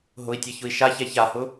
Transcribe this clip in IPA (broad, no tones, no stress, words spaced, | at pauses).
ɦʊi̯tʲɛçʊi̯ ʃaçɛ çahʊ